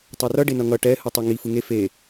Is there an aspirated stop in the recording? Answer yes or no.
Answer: no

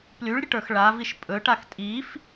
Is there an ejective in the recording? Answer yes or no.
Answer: yes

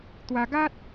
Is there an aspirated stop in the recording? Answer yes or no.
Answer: no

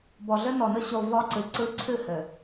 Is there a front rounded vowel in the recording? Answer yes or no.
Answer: no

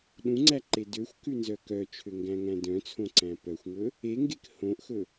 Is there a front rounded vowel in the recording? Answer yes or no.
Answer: yes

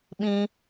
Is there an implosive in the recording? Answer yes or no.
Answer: yes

